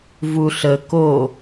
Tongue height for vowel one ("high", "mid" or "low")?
high